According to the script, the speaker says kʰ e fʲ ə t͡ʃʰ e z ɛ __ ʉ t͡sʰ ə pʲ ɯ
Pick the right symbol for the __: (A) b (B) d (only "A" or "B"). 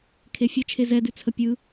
B